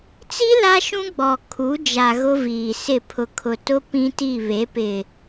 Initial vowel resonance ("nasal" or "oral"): oral